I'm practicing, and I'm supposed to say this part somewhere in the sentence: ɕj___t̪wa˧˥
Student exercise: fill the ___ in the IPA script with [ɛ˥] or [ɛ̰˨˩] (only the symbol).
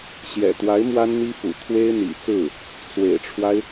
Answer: ɛ̰˨˩